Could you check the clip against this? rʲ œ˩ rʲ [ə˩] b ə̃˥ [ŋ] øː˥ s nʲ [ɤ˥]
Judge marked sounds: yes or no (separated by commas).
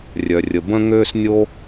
yes, yes, no